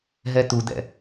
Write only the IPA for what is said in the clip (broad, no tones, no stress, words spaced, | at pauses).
ɦɛt̪ud̪ɛ̰